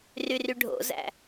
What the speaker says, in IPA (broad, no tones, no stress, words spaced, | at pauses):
ryryɖʱo̰zæ̰